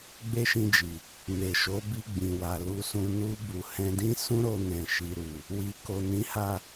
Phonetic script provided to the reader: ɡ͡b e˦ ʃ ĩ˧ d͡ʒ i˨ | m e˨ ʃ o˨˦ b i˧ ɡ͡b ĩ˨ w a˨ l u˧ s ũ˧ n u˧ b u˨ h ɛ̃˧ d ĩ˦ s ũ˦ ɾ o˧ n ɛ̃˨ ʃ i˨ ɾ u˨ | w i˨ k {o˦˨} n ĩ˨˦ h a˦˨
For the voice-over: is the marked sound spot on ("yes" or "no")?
no